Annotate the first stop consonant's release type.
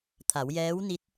aspirated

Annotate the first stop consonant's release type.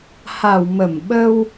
implosive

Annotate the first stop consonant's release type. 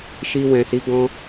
plain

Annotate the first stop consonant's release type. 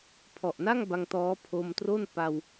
aspirated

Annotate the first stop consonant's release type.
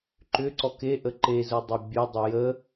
click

